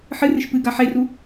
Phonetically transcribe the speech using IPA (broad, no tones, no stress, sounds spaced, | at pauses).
ħ ɨ r ɨ ʃ p ɨ ɡ a ħ e r u